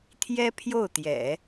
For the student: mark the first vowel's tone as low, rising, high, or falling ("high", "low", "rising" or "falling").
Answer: high